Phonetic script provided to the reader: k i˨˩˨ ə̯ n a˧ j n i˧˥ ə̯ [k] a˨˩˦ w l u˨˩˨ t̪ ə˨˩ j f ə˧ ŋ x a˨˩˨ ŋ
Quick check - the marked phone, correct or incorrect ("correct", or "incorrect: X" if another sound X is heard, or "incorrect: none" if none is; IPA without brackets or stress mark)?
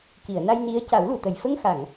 incorrect: c